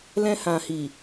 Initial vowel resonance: nasal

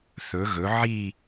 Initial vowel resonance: oral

